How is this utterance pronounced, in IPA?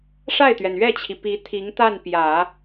ʂa˥˩ɪ̯t̪ɥɛ˩nɥɛ˥˩t͡ɕʰi˩ pi˧˥t̪ʰi˧˥ŋ t̪a˥˩npjä˨˩˦

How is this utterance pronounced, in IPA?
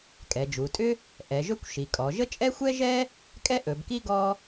kʼɛ˩˧d͡ʒu˩˧tʼʏ˥ | ʔɛ˩˧ʒɵ˥kʷ ʃi˩˧kʼɔ˩˧ʒə˥ t͡ʃʼɛ˥xʷɛ˥ʒɛ˥ | kʼɛ˥ʔɵ˩˧bki˥ ɡɔ˥

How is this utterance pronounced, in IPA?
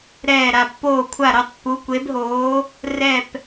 ɾɛː˧˩ɾa˧˩ pːoː˧˩kʷʰa˧˩ ɾo˧˩tˤpːu˩˧kʷe˩˧bɦoː˩˧ | rɛ˧˩p

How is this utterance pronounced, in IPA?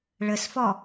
ɭəsfɔ

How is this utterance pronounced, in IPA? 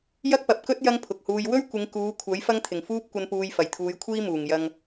jɐ˥k̚pɐ˨p̚kɵ˥t̚ jɐ˥ŋpʰʊ˨k̚huː˧j wɵ˥ɥkʷɪ˨˧ŋ kuː˨˧kʷʰɐ˨˥j fɐ˥ŋt̪ʰɪ˨˩ŋfuː˥p̚ kʷɐ˧npuː˧j fɐ˨˩jt̪ʰuː˨˧jkʷʰiː˥ muː˨˩ŋjɐ˧ŋ

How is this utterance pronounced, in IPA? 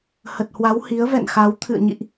hə˨˩t̚hwa˨˦w hi˨˦ə̯vɛ̰˧˨nxa˨˦w t̪ʰɨ̰˧˨ə̯ɲḭ˧˨ʔ

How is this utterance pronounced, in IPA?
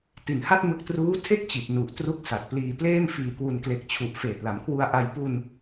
ti˨˩nha˥˩t̚mɯ˦˥k̚ truː˦˥ tʰe˥˩k̚t͡ɕi˨˩t̚ nu˨˩ʔ tru˦˥k̚sa˨˩t̚pliː˧ pleː˥˩mfiː˧kwu˧n kle˨˩k̚t͡ɕʰu˨˩ʔ feː˨˩t̚la˩˦mkʰwu˧a̯ ʔa˧j pu˧n

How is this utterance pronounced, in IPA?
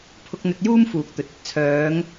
pʰʊ˧k̚n̪ɵ˧t̚juː˥m fuː˨k̚t̪ɵ˨t̚ɐ˧t̚ t͡sʰœː˨˧ŋ

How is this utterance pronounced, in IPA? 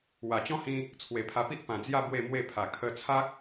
wa˨˩t͡ɕɔ̃˦hĩ˧ | t͡sʰwe˨˩pʰa˧pi˦ʔ pã˨˩d͡zja˥˧ bwe˥˧mwe˥˧pʰa˨˩ kʰə˧t͡sʰa˦k̚

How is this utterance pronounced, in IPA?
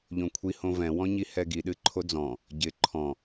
ʎõkʷʰi hõvɛ̃ wɔ̃ɲihɛɡi ɗɨǃʰod͡zɔ̃ | ɟɪ ǃʰɔ̃

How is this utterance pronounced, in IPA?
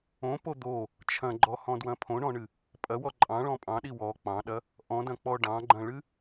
õpo d̪o | t͡ʃʰɐ̃ɡ͡ǃɔhɔ̃dwɐ̃ pʰõɳɔ̃ɳɨ | pʼɐwɔ ǃʼɑ̃ɭɔ̃ pʼɑ̃ɗi wɔ k͡pɑ̃ɗɐ | ʔɔ̃dɐ̃k͡pɔ ɖɑ̃ɡ͡ǃɐ̃ɭɨ

